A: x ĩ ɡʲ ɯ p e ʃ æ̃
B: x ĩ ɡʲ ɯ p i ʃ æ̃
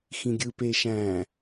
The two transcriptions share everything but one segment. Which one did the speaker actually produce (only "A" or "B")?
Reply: A